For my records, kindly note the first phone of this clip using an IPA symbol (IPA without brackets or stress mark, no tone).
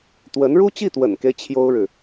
t̪